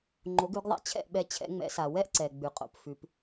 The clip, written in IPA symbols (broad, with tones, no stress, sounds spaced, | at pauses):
ŋ͡ǃ o˩˥ ɡ ʉ˩˥ ɡ ðˤ a̰˩˥ t͡ɕʰ ɛ̰˥˩ ʔ ɓ ɛ˧ t͡ɕʰ ɛ̰˩˥ ŋ͡m ɛ̰˩˥ s a˩ w ɛ˥ ʔ ǀ ɛ˩ ɡ͡b ʉ˩ qʼ o̰˩ p f ʉ˩ p